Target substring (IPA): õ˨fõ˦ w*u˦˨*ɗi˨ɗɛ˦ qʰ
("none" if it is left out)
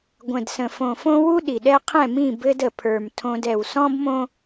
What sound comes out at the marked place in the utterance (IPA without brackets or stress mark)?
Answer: u˦